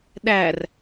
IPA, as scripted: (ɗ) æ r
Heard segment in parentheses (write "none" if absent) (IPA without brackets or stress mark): ɗ